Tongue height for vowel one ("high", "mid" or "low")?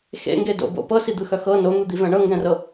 mid